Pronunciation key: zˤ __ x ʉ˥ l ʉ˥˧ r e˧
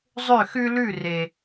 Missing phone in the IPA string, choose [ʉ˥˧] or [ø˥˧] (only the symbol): ø˥˧